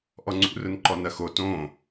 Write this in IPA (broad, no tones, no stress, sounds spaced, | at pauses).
ʔ ɔ ŋ͡ǀ ṵ r ʊ n ǃ ɔ n ɐ x o t õ